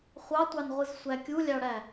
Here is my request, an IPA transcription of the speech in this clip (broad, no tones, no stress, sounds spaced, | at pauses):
χʷ ɑ tʷ ɑ n ʁʷ ɯ z sʷ æ kʲ u lʲ ɑ ɽ æ